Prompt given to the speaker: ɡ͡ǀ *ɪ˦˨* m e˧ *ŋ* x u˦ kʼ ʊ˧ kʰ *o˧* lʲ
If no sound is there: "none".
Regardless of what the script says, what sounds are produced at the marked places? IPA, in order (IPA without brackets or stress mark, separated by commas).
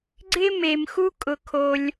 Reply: ɪ˦, m, o˧